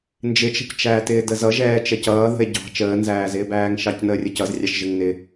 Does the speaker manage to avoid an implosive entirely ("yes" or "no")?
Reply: yes